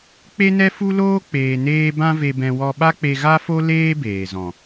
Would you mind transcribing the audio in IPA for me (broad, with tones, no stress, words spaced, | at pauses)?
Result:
k͡pe˦nɛ˦fu˦loː˦ k͡peː˧neː˦ bã˦ve˧bɛ̃˧wɔ˧ ɓa˦k͡pe˧ɣa˦fo˦ leː˦beː˨zɔ̃˨